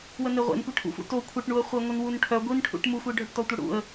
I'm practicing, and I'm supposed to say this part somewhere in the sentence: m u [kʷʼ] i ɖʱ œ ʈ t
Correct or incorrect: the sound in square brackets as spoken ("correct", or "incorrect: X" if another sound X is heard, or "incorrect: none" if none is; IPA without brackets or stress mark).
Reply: incorrect: xʷ